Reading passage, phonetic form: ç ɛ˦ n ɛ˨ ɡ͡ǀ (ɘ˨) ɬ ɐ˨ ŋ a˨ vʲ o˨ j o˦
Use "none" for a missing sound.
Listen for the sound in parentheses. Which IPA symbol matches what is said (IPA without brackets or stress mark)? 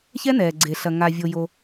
e˨